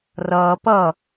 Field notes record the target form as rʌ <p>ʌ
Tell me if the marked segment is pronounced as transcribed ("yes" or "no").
yes